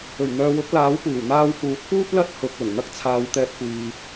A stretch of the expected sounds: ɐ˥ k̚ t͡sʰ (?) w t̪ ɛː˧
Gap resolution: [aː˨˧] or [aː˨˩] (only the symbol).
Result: aː˨˧